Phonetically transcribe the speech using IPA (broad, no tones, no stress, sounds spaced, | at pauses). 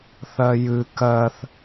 θ ɜ j ɨ k ɜ θ